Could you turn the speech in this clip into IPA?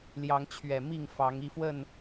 l j ɑ˨˦ ŋ t͡ɕʰ ɥ ɛ˨˩ m i˥˨ ŋ f ɑ˨˦ ŋ i˥˨ f w ə˥˨ n

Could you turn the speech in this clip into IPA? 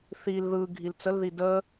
θ i l ð ɯ ɡʱ i l t͡s ə l ð i d ə

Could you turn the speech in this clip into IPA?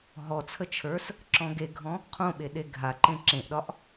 ɦ ɔ t͡sʰ ə t͡ʃʰ ə˞ s | ǁ ɔ̃ ɡ e ɡʱ ɔ̃ | qʰ õ ɓ e ɗ e ɡʱ a ǃ ẽ ǁ ẽ ʔ ɗ ɒ ʔ

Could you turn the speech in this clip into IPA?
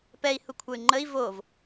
p ɛ i̯ h u kʷʰ ɐ y̯ ŋ͡ǃ ə i̯ v o v

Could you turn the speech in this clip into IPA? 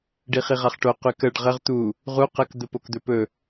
ɖ i χ i ʁ a χ ʈ o q y k ə ɖ ʁ ə ʁ t̪ u | ʁ u q ə k d̪ ə p o k d̪ ɵ p ɵ

